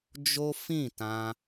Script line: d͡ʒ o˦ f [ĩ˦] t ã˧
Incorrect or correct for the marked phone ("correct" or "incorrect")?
incorrect